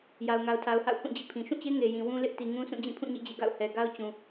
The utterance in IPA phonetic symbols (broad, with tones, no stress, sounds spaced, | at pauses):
j a˨ ʊ̯ ŋ a˨ ʊ̯ tʰ a˨ ʊ̯ h a̰˦˨ ʊ̯ h ũ˦˨ d͡ʑ ḭ˦˨ pʰ ĩ˨ ʃ ũ˦˨ t͡ɕ e˦ ŋ e˨ j ĩ˨ w ũ˦ l ɪ˦ ʔ t i˨ ŋ ũ˦ sʰ ũ˦˨ d͡ʑ ĩ˦˨ pʰ ũ˦˨ ɲ ḭ˦˨ d͡ʑ ḛ˦˨ ɡ a̰˦˨ ʊ̯ h ɛ˨ ɡ a˦ ʊ̯ t͡ɕ ũ˨